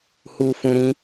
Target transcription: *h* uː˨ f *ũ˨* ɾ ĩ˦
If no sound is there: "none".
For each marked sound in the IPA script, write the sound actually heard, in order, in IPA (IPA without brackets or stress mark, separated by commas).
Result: h, ũ˨